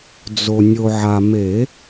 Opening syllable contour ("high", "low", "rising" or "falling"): low